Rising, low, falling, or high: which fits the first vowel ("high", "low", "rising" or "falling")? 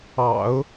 low